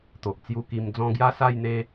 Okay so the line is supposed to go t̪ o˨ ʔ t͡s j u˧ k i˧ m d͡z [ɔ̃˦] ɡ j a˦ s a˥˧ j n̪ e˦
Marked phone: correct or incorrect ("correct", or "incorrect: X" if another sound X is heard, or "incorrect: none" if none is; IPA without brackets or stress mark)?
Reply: correct